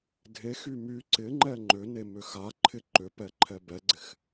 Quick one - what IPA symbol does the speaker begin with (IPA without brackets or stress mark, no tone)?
dʱ